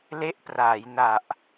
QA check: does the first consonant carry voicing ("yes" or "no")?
yes